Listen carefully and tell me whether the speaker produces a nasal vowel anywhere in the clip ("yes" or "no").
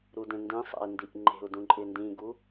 yes